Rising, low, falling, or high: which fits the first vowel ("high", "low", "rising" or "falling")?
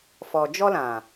low